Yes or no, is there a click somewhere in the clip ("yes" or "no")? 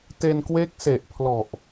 no